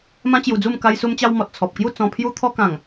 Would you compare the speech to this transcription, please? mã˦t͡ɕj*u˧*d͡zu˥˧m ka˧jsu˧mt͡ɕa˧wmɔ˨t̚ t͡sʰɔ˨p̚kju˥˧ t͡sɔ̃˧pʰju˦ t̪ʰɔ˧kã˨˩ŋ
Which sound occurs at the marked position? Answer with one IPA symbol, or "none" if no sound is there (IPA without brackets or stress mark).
u˧